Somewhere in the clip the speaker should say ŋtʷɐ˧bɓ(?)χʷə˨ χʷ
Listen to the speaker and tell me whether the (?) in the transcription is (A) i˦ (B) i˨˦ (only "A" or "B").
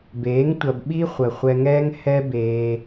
A